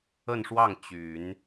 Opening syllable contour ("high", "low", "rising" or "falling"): falling